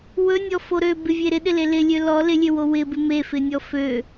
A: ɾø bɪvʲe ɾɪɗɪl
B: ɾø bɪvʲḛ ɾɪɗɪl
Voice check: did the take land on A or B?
A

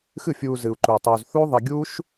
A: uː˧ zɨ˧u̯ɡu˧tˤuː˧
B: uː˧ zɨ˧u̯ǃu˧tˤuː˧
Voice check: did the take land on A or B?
B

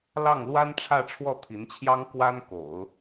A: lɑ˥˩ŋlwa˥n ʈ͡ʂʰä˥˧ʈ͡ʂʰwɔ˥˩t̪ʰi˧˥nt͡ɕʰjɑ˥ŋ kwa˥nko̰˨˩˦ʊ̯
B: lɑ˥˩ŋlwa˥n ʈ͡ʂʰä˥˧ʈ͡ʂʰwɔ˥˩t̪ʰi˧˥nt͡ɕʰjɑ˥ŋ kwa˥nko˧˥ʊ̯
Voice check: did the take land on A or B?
A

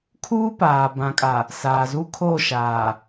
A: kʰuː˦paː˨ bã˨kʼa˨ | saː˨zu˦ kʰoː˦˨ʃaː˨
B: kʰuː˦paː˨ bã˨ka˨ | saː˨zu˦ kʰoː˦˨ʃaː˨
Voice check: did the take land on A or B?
A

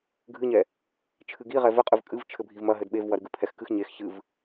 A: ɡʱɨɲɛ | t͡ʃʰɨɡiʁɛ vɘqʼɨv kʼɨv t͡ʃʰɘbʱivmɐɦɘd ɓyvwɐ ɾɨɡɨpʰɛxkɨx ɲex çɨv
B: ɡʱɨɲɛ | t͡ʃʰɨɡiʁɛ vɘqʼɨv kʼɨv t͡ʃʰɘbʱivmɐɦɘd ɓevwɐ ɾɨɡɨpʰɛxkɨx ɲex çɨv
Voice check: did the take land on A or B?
B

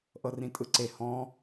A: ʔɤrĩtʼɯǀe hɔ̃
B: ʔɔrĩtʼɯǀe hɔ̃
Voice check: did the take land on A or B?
A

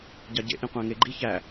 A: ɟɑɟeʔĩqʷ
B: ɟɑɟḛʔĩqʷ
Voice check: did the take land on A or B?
B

